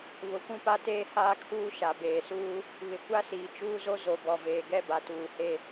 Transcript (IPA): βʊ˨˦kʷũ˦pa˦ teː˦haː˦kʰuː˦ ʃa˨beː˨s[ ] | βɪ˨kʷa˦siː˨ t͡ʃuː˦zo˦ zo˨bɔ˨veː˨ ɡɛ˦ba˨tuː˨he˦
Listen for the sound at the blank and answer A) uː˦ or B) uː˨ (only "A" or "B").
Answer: A